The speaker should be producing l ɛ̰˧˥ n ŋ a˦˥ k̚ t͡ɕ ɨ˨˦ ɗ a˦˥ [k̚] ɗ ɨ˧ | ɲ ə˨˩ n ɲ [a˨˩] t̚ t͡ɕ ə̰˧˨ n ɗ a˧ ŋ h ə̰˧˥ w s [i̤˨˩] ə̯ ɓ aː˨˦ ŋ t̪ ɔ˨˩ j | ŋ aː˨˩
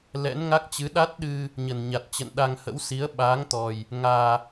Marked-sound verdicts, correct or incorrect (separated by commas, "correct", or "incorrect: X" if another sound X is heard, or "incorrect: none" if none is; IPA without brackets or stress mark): incorrect: t̚, correct, incorrect: i˨˦